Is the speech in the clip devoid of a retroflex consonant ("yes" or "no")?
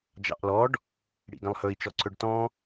no